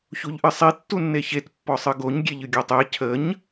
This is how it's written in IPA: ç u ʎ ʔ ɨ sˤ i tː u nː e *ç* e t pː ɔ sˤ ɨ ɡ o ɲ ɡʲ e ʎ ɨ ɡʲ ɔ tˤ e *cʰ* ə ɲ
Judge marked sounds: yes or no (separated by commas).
yes, yes